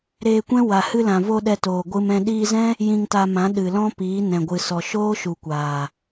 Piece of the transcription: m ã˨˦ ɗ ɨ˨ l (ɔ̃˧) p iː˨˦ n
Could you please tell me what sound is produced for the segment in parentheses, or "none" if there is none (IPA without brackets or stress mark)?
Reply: ɔ̃˦